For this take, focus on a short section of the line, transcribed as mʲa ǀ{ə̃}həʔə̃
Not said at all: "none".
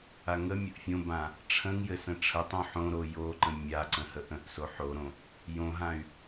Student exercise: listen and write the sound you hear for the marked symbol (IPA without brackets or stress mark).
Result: ə̃